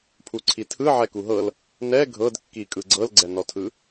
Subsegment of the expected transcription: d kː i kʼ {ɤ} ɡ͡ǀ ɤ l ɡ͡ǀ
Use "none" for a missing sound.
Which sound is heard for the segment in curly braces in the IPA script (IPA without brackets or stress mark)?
ɯ